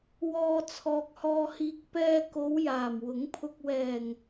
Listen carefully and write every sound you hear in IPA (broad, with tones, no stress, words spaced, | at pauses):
wɔː˨ t͡sʰɔː˨k̚hɔː˧hiː˧k̚ pɛː˧ko˨˧w jaː˨˩mwʊ˨˥ŋpʰʊ˧k̚ wɛː˨˩ŋ